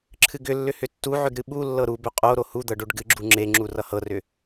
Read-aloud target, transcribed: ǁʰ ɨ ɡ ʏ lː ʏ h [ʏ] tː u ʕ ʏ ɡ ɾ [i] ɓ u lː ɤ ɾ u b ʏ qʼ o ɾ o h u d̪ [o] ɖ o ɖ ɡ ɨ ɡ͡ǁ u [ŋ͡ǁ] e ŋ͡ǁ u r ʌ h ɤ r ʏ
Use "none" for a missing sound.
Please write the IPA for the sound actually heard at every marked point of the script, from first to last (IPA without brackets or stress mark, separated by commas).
ʏ, ɨ, ɤ, ŋ͡ǁ